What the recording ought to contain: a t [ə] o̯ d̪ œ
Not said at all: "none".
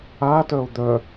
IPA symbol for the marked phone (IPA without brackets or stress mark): œ